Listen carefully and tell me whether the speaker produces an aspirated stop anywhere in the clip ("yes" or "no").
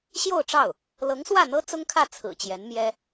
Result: yes